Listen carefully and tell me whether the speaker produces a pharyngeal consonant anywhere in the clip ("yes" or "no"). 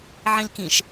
yes